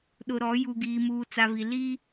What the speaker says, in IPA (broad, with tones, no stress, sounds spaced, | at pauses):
ɗ ʊ˨ ɾ ɔ˨˦ j u˨ ɡ iː˨ m uː˨ t͡s a˨ v i˨ l i˦